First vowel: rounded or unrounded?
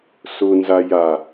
rounded